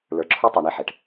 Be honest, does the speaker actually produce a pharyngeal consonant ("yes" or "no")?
yes